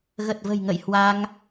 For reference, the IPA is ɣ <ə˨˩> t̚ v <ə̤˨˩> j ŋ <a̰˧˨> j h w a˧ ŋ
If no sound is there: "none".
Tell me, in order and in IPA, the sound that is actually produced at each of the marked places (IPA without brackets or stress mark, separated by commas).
ə˨˩, ə̤˨˩, ə̰˧˨